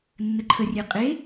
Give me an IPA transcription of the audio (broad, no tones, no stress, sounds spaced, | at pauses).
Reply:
nː ə ǃʰ ə rʲ e qʼ e